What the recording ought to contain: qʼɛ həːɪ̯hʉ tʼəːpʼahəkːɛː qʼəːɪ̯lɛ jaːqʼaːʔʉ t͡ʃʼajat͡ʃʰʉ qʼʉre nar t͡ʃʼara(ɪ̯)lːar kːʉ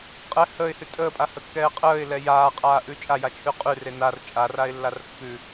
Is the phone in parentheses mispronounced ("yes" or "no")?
no